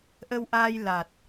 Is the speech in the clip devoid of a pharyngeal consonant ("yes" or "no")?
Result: yes